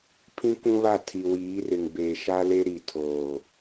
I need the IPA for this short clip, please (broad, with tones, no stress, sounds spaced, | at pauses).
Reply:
pʰ ĩ˦ k ũ˦ β a˦˨ tʰ i˨ w iː˨˦ r ɪ˨ ŋ b eː˨ ʃ a˦ l e˦ ɾ i˨ tʰ oː˨